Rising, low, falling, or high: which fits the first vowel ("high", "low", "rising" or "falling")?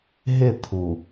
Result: falling